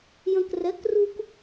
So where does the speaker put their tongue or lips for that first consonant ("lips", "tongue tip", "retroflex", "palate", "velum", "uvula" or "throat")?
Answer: palate